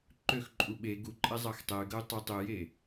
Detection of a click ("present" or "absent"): present